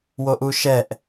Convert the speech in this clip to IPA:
w o ʔ u ʃ ɛ ʔ

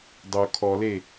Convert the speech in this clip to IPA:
dˤ o kʰ ɔ l e

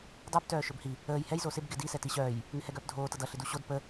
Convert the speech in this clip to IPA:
dˤ u b t œː ʃ ɵ b h i | əː j h ɛ j z o s ɪ b ɡ ɪ d i s ɛ t i ɕ œː j | ŋ ɪ h ɛ ɡ œː p dʱ oː t ʌ d ʌ ɬ ɪ d u ɕ o d p ə

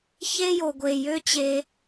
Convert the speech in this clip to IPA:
ç e˦ j o˨ ɡʷ e˨ j ø˦ t͡ɕ e˧

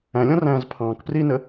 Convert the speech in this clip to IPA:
æ̃ lʲ ɔ̃ r æ̃ː z pʰ ɑ̃ː k p r iː n ə

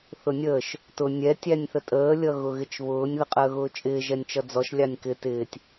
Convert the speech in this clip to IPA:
θ ʊ nʲ əː ʃ | t ʊ nʲ ɛ tʲ æ nʲ θ ə tʼ əː lʲ ʌ ɣ ʊ ɣ ɪ t͡ʃ β ʊː nʲ ð ə qʼ əː ɣ ʊː t͡ʃʼ ɪː ʒ ɛ nʲ t͡ʃ ʌ d͡z ɔ ʃ lʲ ɑ nʲ k ɪ t ɪː tʲ

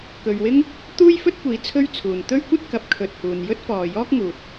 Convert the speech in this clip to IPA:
k ɵ˨ ɥ w ɪ˥ ŋ | t̪ uː˥ j f ɵ˥ t̚ kʷ iː˨˧ t͡sʰ ɵ˥ ɥ t͡sʰ uː˨ n t̪ ɵ˥ ɥ kʷ ɐ˥ t̚ k ɐ˨˥ p̚ kʰ ɵ˨ t̚ h uː˨ n j ɵ˥ t̚ f ɔː˨ j ɔː˥ k̚ ŋ uː˨ t̚

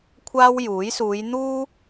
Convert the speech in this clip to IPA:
kʷʰ aː˥ w j uː˨˥ j s uː˨˧ j n̪ uː˥

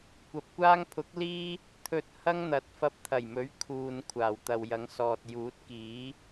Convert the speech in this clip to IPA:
kʷ ɐ˨ p̚ kʷ aː˥ ŋ pʰ ʊ˨˥ k̚ l iː˥ | t̪ʰ ɵ˧ t̚ h ɐ˥ ŋ n̪ ɐ˨˥ t̚ f ɐ˧ p̚ t̪ʰ ɐ˨˩ j m ɵ˨˥ ɥ kʰ uː˨ n kʷʰ aː˨˩ w t̪ ɐ˨ w j ɐ˨˧ ŋ s ɔː˨ t̚ j uː˨˥ t̚ k iː˨˥

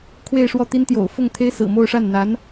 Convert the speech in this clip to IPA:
kʰ w e˥˧ ɪ̯ ʂ w ɔ˥˩ t̪ i˥ n t̪ j o̰˨˩ ʊ̯ f ʊ˥˩ ŋ t̪ʰ e˥ ɪ̯ s ɹ̩˨˩ m o˥˧ ʊ̯ ʂ a˥˩ n n̪ a˧˥ n

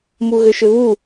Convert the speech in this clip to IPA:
m u ɣ ʏ ʃ ʏ β u

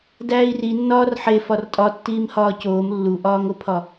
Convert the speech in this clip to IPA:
d æː i̯ r i nː ɒː r ħ e f ɒ r tʼ ɒ tː iː m h ɒː c oː m lː u ʔ ɒː ŋ o pʰ ɒ

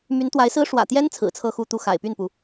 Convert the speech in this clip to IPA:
m y˧˥ n t̪ w a˧˥ ɪ̯ s ɹ̩˥ ʂ w ä̰˨˩ t̪ j ɛ˥ n t͡sʰ ɹ̩˨˩ t͡sʰ ɤ˥˧ x u˥˧ t̪ u˥˩ x a̰˨˩ ɪ̯ p y˥˩ n p u˩

